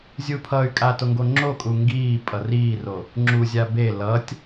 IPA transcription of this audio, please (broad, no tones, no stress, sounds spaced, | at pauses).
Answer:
zʲ u pʰ ʌ y̯ kʼ a t o ŋ ɡ o ŋ͡ǁ o kʼ u ŋ ɡ iː pʼ ʌ r iː r o | ŋ͡ǁ u zʲ a b e l ʌ tʲ